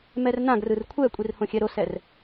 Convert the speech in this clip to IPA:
m ɛ r n ã ɡ r ɯ r kʷʰ ɛ kʷʼ i r h õ xʲ ɛ ɾ o s ɛ r

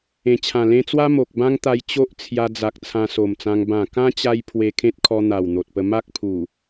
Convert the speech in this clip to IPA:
ẽ˨˩ t͡ɕʰ ã˨˩ l ẽ˧ t͡s w a˦ m o˨ k̚ b ã˦ ŋ t̪ a˧ j t͡ɕ o˦ ʔ t͡sʰ j a˧ d͡z a˨ k̚ t͡sʰ ã˧ s o˨˩ m t͡s ã˧ ŋ b ã˨˩ k ã˦ t͡ɕ a˦ j pʰ w e˧ kʰ ẽ˦ t̚ kʰ ɔ˧ n̪ a˨˩ w n̪ o˨ t̚ p ə˧ m a˦ k̚ pʰ u˨˩

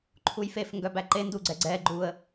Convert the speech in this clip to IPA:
ǃʰ u j f e f ŋ ɡ œ b æ ǃ e n d u ɡ͡ǀ ɛ ɡ͡ǀ ɛ ɡ͡ǃ u ə̯

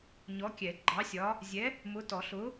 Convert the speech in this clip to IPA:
ɲ ɔ˨˥ kʲ ɛ˨˩˦ ɡ͡ǃ ɑ˨˥ sʲ ɒ˨˥ | zʲ ɛ˨˥ | m ʊ˨˥ t ɔ˨˩˦ ɬ ʊ˨˥

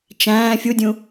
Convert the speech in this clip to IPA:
t͡ʃ æ̃ː fʲ u dʲ ũ

